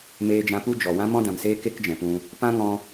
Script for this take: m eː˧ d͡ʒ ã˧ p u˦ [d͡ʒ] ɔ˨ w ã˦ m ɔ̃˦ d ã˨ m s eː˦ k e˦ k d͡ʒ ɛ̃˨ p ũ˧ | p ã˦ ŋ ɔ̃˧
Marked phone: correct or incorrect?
correct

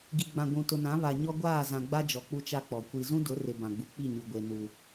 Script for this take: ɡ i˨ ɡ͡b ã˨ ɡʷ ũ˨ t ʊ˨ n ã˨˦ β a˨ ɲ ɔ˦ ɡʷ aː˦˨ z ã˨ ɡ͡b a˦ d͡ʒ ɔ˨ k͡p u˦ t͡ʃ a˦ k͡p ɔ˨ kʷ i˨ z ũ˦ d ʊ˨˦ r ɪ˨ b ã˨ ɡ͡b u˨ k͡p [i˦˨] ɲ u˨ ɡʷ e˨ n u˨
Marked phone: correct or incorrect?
correct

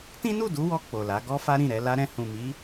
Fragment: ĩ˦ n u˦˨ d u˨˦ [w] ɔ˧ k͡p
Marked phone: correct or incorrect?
correct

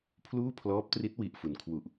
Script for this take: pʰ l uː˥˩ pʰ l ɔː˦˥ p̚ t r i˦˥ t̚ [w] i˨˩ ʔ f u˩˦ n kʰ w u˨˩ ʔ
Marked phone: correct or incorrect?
correct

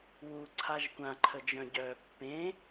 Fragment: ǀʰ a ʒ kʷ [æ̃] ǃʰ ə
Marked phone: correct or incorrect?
incorrect: ã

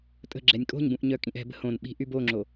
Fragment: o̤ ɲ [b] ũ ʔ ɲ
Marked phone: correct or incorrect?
correct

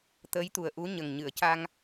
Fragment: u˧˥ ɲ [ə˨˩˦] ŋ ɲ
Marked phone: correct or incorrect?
incorrect: ə˨˩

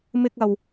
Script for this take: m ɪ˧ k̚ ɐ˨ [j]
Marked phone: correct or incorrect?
incorrect: w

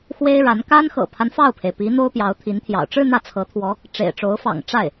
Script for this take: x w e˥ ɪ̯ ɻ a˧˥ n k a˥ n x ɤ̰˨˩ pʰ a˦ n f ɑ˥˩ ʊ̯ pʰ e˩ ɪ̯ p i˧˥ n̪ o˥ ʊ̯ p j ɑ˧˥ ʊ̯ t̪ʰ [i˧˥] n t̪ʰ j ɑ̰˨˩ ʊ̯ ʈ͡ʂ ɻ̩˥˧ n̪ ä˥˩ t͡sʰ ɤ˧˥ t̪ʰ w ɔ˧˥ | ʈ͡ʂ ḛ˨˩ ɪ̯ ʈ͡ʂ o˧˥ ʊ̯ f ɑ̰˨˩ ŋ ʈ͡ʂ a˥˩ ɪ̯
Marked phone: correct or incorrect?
correct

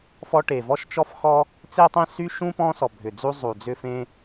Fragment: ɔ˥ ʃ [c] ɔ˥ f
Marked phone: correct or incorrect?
incorrect: t͡ʃ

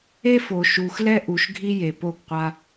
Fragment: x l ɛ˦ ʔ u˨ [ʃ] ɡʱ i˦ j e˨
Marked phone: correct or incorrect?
correct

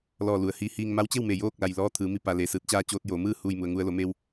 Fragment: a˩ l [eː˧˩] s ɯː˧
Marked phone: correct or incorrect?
correct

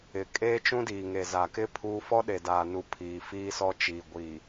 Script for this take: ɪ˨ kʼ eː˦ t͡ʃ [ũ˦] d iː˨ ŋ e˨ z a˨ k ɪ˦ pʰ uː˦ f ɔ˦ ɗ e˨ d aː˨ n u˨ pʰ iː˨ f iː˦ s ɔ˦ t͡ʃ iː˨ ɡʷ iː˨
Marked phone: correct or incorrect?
correct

